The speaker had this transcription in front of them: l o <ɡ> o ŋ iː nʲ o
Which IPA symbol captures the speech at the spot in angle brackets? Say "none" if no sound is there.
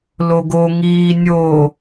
ɡ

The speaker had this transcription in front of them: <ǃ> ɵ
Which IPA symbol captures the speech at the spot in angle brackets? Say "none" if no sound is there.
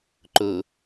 ǃ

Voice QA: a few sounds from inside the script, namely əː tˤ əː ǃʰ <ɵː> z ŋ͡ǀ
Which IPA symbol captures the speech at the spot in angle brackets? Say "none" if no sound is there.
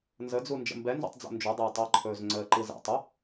ɵː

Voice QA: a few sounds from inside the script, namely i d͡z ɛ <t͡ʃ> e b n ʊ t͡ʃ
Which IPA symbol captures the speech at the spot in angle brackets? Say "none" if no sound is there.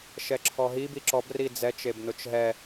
t͡ʃ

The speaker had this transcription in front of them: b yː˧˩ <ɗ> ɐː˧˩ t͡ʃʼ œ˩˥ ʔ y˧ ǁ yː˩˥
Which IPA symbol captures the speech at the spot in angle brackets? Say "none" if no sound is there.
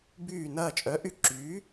n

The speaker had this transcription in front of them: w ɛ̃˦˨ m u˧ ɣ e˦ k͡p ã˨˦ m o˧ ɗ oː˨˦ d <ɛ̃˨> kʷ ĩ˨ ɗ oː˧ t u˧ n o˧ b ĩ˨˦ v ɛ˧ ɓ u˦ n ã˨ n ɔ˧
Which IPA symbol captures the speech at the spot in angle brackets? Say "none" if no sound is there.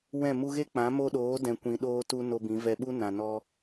ɛ̃˨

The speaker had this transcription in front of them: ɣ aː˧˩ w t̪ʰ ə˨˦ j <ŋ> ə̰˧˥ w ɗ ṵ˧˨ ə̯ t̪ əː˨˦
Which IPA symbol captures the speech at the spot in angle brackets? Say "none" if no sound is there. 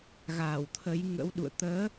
ŋ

